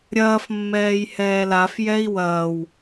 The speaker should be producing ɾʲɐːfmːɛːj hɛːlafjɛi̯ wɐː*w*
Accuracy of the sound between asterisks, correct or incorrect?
correct